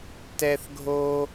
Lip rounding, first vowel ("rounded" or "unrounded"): unrounded